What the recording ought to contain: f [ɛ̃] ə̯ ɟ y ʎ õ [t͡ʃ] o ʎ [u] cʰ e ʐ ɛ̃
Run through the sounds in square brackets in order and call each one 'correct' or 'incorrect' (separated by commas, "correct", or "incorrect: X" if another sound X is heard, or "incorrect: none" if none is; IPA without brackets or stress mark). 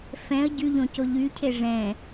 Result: correct, incorrect: c, incorrect: y